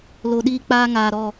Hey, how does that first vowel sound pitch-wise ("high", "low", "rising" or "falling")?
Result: low